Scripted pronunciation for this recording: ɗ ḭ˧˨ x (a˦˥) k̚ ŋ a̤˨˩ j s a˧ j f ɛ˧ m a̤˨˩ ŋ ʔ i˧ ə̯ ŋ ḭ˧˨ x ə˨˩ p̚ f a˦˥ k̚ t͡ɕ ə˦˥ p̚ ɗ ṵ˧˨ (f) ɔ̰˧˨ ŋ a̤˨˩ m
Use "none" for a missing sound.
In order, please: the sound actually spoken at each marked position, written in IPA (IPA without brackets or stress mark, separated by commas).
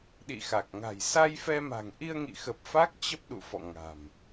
a˨˩, f